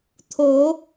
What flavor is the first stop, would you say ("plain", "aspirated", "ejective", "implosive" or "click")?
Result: aspirated